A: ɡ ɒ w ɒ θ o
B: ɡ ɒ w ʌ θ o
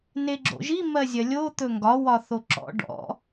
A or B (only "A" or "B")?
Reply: A